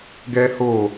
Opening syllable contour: high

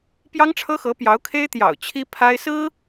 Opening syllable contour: high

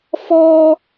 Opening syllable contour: high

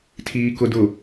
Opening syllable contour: low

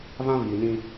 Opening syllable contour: high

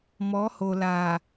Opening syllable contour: rising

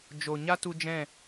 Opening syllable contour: low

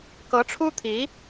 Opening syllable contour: rising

